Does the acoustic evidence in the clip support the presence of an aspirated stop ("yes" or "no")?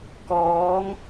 no